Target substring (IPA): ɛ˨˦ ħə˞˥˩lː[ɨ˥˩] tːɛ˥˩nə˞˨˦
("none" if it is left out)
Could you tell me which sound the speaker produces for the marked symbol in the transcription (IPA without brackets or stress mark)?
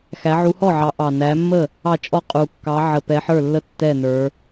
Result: ə˥˩